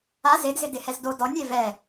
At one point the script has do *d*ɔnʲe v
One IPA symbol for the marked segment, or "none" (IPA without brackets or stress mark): d